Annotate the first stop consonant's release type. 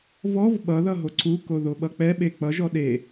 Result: implosive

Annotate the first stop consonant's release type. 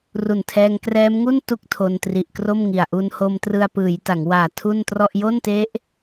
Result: aspirated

